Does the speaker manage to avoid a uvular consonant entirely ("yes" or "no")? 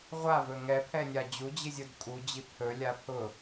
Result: no